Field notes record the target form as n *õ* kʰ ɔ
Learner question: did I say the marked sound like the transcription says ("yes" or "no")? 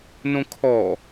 yes